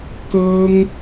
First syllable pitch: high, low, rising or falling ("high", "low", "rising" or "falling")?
high